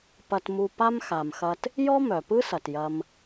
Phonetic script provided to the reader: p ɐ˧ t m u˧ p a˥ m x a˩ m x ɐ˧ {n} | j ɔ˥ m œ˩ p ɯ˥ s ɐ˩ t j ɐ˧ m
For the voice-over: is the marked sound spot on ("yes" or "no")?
no